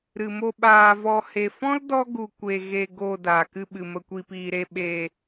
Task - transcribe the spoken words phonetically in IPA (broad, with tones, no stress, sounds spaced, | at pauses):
ɾ ɨ˨ m o˧ ɓ aː˨ v ɔ˨ h e˨ f ɔ̃˦ l d ɔ˦ ɡ u˨ kʷ e˨ ɣ e˨ ɡ o˧ d aː˨ k ɨ˧ ɓ ɨ˨ m ə˨ kʷ iː˨ p iː˨ ɾ e˧ ɓ e˧